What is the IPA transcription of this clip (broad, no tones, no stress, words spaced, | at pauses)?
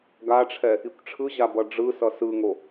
ɡaʈ͡ʂʰɛ | ikʷʈ͡ʂʰɯʑa bʌɖ͡ʐɯsʌ sɯŋo